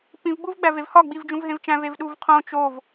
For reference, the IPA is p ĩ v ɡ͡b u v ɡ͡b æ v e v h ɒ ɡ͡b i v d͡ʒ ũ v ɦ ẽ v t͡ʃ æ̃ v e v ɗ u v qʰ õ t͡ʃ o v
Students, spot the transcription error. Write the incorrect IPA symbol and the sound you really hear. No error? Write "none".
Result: none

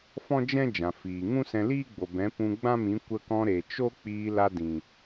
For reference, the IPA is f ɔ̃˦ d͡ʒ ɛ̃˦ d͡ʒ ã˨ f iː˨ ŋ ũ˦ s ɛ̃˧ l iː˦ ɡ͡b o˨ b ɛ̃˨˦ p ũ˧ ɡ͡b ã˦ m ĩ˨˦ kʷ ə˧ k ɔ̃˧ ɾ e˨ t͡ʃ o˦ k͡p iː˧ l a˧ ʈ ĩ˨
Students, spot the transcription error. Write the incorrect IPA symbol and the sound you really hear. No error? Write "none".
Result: ʈ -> d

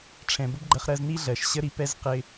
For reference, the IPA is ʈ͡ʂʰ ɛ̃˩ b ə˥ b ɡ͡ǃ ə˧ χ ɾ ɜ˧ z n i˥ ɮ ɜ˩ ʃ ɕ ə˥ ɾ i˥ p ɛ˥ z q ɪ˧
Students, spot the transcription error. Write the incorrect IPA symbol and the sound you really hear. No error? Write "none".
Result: none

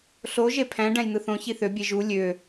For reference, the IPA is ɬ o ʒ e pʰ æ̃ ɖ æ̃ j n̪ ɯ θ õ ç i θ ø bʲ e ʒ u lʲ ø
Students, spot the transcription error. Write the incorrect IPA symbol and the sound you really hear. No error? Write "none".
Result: none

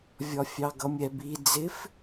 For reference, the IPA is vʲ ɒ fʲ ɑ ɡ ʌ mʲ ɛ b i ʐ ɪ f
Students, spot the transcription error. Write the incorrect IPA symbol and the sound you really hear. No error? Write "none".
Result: ʐ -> d͡z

